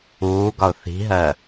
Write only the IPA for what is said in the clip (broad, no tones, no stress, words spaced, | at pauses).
uːɡɒʊ̯ θi̤ɦɜ